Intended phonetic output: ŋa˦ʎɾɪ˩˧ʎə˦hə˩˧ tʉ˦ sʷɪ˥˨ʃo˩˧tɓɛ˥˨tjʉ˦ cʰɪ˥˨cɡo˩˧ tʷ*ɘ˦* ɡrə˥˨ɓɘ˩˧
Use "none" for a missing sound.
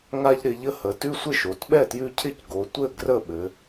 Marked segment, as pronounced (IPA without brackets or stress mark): ɘ˥˨